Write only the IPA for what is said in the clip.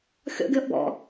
xʲ ɔ̰ ɡʲ ɔ ʔ b ɔ̰

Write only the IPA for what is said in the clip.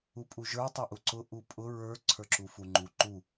u pʼ u ʒ ə˞ tˤ a ʔ u ǀ ʊ ʔ u pʼ ʊ ɹ ə˞ ǀʰ ə˞ ǁ u f u ŋ͡ǃ u ǃ u

